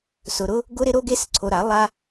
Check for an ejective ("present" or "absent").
absent